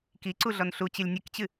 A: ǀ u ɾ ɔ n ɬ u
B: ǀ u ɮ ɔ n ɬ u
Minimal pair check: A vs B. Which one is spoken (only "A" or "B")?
B